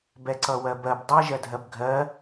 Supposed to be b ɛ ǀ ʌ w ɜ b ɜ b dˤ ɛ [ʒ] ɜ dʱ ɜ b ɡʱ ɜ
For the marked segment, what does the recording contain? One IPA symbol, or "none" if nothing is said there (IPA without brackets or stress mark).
ʒ